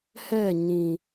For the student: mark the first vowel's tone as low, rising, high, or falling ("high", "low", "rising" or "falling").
falling